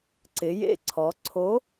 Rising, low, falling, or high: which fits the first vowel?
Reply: rising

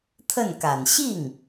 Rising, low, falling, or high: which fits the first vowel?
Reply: falling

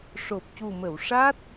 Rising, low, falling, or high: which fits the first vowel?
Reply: low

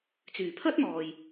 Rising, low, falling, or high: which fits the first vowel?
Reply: low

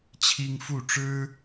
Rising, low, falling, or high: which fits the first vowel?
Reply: high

